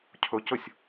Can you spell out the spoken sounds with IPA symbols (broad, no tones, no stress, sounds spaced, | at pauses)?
cʰ ɵ c ɵ sʲ